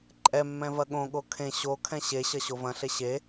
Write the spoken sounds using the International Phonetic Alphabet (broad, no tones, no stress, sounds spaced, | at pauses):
ǃʼ ɛ mː ɛ̃ v ɐ ɠ õ ɠ o kʰ ẽ ɕ o kʰ ɛ̃ ɕ e ɕ ɐ ɕ o v ɐ̃ ɬ e ɕ e